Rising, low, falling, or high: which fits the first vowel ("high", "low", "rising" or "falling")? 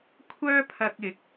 high